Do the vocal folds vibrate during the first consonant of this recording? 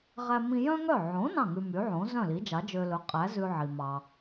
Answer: yes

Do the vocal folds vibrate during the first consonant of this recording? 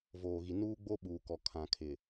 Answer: yes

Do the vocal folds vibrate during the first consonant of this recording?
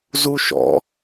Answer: yes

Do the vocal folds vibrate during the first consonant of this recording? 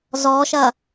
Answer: yes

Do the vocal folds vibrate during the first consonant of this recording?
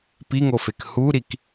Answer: no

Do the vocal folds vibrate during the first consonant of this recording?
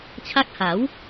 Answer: no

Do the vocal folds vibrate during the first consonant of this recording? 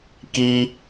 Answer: no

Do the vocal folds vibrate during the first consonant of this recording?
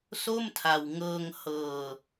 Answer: no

